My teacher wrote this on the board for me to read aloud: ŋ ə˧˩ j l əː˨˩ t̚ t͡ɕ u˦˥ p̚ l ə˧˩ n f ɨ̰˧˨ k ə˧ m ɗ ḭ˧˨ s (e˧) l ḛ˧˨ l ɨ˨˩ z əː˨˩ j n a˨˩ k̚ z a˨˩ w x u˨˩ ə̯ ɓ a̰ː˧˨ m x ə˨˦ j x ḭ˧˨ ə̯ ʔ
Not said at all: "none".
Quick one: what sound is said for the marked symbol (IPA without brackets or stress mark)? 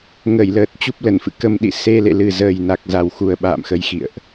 e˧